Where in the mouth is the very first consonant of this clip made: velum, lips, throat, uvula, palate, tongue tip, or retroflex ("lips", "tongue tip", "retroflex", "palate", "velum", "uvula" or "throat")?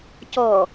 palate